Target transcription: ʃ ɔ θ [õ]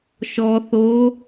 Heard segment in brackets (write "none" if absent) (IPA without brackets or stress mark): o